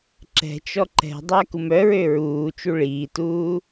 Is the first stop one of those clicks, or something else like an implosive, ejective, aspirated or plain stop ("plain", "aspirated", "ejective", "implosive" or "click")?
click